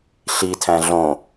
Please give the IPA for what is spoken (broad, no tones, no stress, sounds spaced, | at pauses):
ɬ i tʰ æ̃ ɮ õ